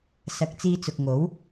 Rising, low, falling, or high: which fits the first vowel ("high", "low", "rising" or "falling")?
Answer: low